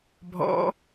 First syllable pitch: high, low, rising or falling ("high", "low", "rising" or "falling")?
rising